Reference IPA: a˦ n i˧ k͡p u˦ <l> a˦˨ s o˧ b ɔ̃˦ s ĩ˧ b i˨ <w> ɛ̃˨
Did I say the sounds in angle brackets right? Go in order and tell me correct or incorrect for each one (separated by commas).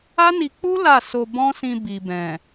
correct, incorrect